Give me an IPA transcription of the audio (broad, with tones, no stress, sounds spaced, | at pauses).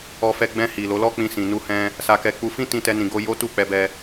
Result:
ɔ˧ f ɛ˧ ɡ͡b ɛ̃˧ h i˨ l o˨˦ l ɔ˦ k͡p ĩ˧ s ĩ˨ n u˧ h ɛ̃˧ | s a˧ k ɛ˧ k͡p u˧ f ĩ˦ t ĩ˧ t ɛ˧ n ĩ˨ ɡ o˧ j o˦ t u˦˨ k͡p ɛ˧ b ɛ˧